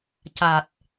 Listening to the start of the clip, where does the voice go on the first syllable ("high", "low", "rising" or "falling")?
low